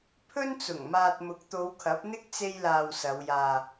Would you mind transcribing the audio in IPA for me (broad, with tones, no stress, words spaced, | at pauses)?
pʰɵ˥nt͡sʊ˨˩ŋmaː˧t̚ mʊ˨˥k̚t̪o˨˧wkʰɐ˨˥p̚n̪ɪ˥k̚ t͡se˥jlaː˧wsɐ˨˧wjaː˧